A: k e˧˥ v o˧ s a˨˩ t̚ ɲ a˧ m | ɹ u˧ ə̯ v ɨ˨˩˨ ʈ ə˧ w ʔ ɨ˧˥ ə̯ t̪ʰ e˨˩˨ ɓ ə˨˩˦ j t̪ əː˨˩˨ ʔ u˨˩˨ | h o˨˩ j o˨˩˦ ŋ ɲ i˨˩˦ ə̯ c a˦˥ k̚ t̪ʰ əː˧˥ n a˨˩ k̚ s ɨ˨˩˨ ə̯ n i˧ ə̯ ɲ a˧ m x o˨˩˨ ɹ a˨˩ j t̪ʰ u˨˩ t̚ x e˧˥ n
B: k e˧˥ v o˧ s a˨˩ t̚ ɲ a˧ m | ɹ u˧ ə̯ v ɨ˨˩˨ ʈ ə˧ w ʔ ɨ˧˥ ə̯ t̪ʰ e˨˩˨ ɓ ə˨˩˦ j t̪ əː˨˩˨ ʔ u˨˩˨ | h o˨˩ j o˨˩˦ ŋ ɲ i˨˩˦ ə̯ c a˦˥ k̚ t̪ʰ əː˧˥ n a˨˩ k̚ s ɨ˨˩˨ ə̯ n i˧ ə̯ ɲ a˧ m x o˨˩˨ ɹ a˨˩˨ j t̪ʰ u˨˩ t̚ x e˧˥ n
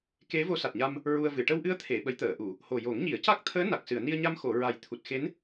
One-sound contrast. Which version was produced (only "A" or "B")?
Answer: A